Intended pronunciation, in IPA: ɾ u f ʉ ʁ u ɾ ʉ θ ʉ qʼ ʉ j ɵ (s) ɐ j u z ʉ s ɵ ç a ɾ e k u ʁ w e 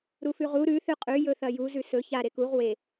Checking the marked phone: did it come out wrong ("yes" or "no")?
yes